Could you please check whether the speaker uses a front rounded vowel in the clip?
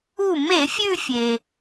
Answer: no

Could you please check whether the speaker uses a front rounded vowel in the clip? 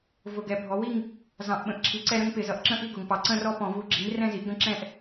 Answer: no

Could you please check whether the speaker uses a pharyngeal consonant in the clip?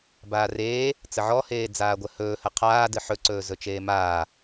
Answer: yes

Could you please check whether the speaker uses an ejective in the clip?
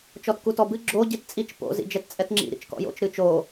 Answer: yes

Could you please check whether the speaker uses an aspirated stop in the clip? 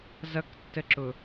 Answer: no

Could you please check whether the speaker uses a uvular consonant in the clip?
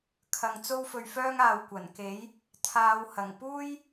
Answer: no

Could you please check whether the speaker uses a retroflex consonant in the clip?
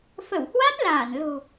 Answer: no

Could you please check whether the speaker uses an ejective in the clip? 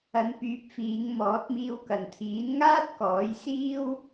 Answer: no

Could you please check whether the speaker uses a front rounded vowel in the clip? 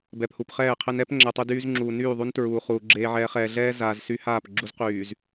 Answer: yes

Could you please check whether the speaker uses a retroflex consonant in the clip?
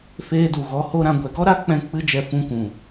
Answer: no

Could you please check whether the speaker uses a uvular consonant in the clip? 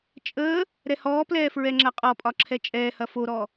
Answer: yes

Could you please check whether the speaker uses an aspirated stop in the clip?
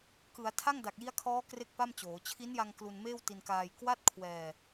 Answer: yes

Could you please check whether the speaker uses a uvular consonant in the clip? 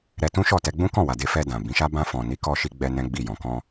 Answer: no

